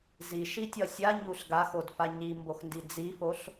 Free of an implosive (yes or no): yes